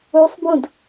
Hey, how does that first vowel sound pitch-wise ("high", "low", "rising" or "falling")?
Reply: rising